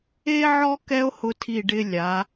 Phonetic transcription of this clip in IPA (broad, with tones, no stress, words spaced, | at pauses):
e˥ʕɔ˥ kɛ˥o̯hʊ˧tʰi˧˩ ɖɪ˧ lʲa˩˧